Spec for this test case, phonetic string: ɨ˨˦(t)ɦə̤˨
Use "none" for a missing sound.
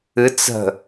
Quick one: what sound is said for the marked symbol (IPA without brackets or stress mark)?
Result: t͡s